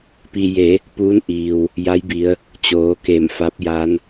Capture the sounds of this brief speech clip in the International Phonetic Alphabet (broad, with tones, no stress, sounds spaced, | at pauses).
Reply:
p i˧ j e˩˧ | p uː˧˥ n ʔ iː˩ w | j a˧˥ j b i˩˧ ə̯ | t͡ɕ oː˩˧ k e˧˩ m f a˧˥ p̚ j a˧˥ n